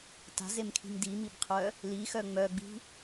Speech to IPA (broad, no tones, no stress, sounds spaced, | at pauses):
t a̤ z e m kʰ i̤ m d i m i b qʰ œ | l i x œ ŋ͡m œ ɡ͡b i̤